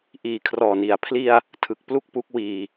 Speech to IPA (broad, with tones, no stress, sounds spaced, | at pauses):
ʔ iː˨˩ kʰ r ɔː˨˩ n i˨˩ a̯ pʰ l i˧ a̯ | tʰ ɯ˨˩ k̚ p l u˥˩ k̚ p u˦˥ k̚ w iː˧